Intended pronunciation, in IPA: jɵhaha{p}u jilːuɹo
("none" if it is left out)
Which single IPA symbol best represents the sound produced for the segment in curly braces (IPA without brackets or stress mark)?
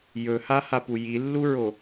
p